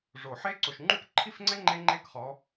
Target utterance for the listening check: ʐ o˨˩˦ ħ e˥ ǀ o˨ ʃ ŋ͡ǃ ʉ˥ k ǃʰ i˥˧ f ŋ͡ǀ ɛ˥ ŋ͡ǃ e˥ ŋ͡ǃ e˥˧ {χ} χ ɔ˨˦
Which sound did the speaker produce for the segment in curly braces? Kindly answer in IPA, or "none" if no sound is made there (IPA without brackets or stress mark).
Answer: k